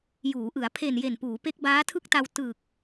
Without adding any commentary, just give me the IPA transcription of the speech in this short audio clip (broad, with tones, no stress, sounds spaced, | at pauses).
j uː˩˦ ʔ ɯ˩˦ a̯ pʰ e˨˩ n j e˨˩ n p uː˩˦ p e˦˥ k̚ b aː˦˥ tʰ ɯ˥˩ k̚ t a˧ w t ɯ˨˩ k̚